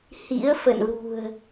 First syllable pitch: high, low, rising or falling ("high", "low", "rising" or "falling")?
rising